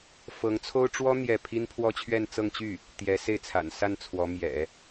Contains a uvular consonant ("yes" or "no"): no